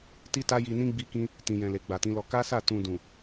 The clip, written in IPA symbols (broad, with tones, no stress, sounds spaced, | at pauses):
t i˦ t a˦ j i˧ n ĩ˦ ɡ͡b i˦ k ĩ˦ | t ĩ˨ j ɛ̃˨ l e˨ ɡ͡b a˨ t ĩ˨˦ l ɔ˧ k a˦ s a˦˨ t ũ˧ d ũ˨